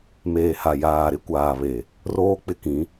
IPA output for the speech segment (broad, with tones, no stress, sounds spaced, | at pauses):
m eː˨ h a˨ j aː˨ ɾ ɪ˦ kʷ aː˨ β e˨ | r oː˦ k͡p ɪ˦ k ĩ˨˦